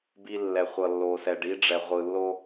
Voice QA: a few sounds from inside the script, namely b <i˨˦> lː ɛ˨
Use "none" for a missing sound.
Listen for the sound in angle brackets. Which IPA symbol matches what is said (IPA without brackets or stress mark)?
i˦